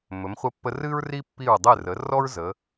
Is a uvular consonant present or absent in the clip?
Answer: present